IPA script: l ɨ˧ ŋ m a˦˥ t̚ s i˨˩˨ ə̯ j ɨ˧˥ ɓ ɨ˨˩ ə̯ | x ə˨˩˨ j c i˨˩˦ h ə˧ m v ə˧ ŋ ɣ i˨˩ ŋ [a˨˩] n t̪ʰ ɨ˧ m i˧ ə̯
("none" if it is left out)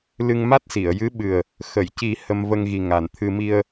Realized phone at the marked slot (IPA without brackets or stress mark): a˨˩